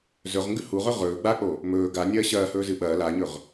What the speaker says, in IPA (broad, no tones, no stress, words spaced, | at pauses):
zɵʁŋɡʉ huʁɵ ʁɵː ɡ͡bak͡po | mɵː ɡanʲɐː ɕɐːhɵːzɨ ɓɐː laɲɵʁ